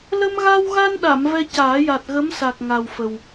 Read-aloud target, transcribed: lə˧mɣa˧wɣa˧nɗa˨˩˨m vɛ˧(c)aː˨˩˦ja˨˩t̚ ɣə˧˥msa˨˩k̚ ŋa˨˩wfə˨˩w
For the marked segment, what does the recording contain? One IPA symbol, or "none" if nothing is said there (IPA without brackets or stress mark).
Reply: c